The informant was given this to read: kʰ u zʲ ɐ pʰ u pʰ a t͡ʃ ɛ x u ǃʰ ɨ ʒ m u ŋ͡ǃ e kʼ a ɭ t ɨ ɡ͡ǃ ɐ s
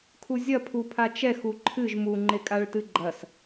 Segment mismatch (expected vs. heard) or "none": none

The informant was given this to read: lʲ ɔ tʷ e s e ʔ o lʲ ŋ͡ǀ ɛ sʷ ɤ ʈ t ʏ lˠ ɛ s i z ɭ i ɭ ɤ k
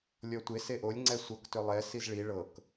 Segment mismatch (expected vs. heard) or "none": ʈ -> k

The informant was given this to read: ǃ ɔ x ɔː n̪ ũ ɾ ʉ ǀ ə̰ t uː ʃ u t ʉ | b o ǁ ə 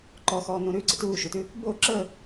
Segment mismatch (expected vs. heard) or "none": none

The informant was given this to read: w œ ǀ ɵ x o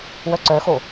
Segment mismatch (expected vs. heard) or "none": ɵ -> œ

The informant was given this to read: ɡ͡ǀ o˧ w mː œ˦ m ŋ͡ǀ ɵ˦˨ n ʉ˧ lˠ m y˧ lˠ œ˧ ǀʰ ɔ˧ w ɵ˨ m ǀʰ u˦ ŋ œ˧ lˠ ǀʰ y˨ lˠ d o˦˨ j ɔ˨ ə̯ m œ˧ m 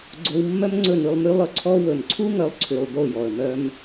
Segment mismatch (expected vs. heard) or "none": none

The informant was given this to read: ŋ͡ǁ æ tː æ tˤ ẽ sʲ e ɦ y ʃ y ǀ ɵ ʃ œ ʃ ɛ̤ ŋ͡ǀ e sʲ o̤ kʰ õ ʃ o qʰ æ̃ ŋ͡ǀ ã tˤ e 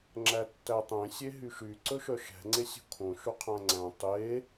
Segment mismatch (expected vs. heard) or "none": ã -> æ̃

